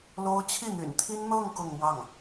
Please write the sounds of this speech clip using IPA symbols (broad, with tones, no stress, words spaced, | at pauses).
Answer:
lo˥ʊ̯ t͡ɕʰi˥˩n̪y̰˨˩nt̪ʰi˥n n̪ɤ˥˧ŋ kʊ˥˧ŋmwɑ˥˩ŋ